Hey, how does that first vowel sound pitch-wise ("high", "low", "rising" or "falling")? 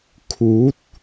rising